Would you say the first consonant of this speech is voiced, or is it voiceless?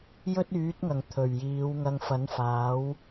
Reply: voiced